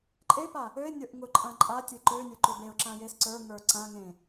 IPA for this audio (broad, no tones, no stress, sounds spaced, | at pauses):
ǃʼ e p a | ø ɪ̯ nʲ ə˞ ʔ ŋ ʊ ǃʼ ã ǃʼ a tʲ e ǃ ø nʲ ə˞ ǃ ø b e ʊ̯ ǁ ã j e s ǀ ə˞ ŋ ə˞ ǀ ã ŋ ẽ